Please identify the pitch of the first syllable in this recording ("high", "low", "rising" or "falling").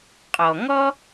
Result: low